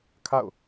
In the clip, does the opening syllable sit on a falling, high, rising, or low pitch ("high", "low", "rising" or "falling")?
falling